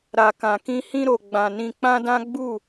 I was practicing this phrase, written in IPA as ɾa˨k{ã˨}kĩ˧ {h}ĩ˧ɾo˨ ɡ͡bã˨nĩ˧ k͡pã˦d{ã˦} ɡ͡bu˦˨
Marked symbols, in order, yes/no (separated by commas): yes, yes, yes